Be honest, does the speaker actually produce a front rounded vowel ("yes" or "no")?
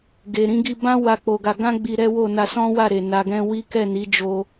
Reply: no